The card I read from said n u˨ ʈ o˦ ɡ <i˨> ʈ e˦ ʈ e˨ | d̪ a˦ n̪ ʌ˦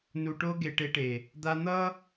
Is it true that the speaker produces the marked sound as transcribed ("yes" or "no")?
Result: no